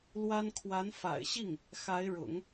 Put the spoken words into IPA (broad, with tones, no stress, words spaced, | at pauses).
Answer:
lwa˥n kʰwa˧˥nfa̰˨˩ɪ̯ɕi˥˩ŋ | xa˧˥ɪ̯ɻʊ̰˨˩˦ŋ